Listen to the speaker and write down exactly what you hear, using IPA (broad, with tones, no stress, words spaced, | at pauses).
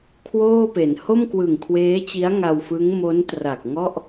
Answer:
kʰwoː˥˩pe˩˦n ho˥˩mkwɯ˨˩ŋkʰweː˦˥t͡ɕi˦˥a̯ ŋa˧wfɯ˦˥ŋ mo˦˥ntra˨˩k̚ŋɔ˥˩ʔ